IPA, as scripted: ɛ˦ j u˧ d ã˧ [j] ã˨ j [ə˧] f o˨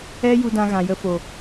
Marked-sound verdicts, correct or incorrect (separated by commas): incorrect, correct